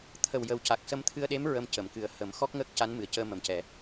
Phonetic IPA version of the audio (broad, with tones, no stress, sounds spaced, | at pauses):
t̪ʰ ə˨˩ w j ə˨˩ w c a˨˩ k̚ s ə˧ m t̪ʰ ɨ˧ ə̯ ɗ e˧˥ m ɹ ə˧ m c ə˨˩˨ m k ɨ˨˩ ə̯ h ə˨˩˦ m x ɔ˦˥ k̚ ŋ əː˦˥ k̚ c a˧˥ n m ɨ˨˩ ə̯ c əː˧ m ə˨˩ m c ɛ˨˩˦